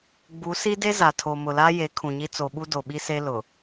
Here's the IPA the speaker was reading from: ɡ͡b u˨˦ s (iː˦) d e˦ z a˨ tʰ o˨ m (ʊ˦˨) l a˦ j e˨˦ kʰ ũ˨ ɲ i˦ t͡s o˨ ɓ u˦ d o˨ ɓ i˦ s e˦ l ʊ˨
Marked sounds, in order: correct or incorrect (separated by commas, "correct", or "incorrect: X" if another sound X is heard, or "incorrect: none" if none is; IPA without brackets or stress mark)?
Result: incorrect: i˦, incorrect: ʊ˨